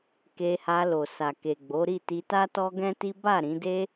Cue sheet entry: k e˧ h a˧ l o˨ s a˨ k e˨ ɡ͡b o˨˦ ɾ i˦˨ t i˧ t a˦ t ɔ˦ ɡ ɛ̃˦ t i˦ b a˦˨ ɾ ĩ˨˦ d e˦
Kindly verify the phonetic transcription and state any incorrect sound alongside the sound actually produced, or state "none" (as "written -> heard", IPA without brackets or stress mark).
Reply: none